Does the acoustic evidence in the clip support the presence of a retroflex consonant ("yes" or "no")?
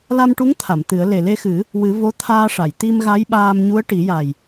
yes